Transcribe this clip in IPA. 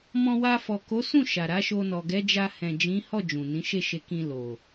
mɔ̃˧wa˧ fɔ˨ko˨˦sũ˦˨ ʃa˨ ɾa˨˦ʃo˧nɔ˨ ɡɛ˨˦d͡ʒa˧ hɛ̃˨d͡ʒĩ˨˦hɔ˦˨ d͡ʒũ˨nĩ˨˦ ʃe˦˨ʃe˧kĩ˧ lo˨

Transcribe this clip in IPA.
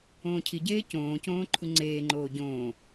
õːcʰiɟeː cõːcõː ǃʰuŋ͡ǀeːŋ͡ǃoː ɟõː

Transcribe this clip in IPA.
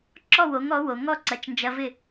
ǁɔ˥˩wo˩˥ŋɔ˩˥ wo˩ ŋɔ˥ǀɐ˩˥t͡ʃ nd͡ʒɐ˧vɪ˥˩

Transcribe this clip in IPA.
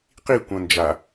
qikʷɐ̃ nd͡ʒa

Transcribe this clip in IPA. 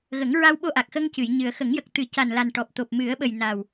ɣə˨˩˦ŋɹa˧wɓo˧ʔa˨˩k̚ xə˧ŋ cɨ˨˩˨jɲɨ˨˩ə̯ xə˨˩˦ŋjə˨˩k̚t̪ɨ˨˩˦ ca˨˩nla˨˩n ʈɔ˨˩p̚t̪o˨˩p̚mɨ˨˩˦ə̯ɓə˨˩j na˨˩w

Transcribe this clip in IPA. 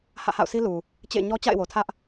hä̰˦˨ha̰˦˨ʊ̯si˦lu˨ | t͡ɕḛ˦˨ɲɔ˦ t͡ɕa̰˦˨ɪ̯wo˨ tʰä˦ʔ

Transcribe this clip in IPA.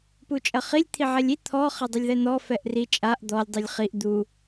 put͡ʃʼɐχilʲ t̪ʰiʕɛlʲi t̪ʰɔ χɛdˤɐlʲðɛn̪ɔ fɛʔri t͡ʃʼaʔ d̪ɔlʲ dˤilʲχiʔ d̪u

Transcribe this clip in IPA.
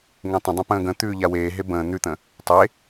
ŋẽtˤə̃dˤə̃ pə̃ːɡə̃t̪ʉː ʎaweːɦe bə̃ː n̪ʉt̪ə̃ | tˤe

